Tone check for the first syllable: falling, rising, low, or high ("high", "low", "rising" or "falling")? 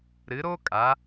rising